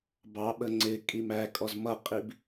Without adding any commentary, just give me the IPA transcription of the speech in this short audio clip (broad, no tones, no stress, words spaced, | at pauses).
bɑɓə ŋ͡ǀɪ kʼimækʼɔz mʌqʼib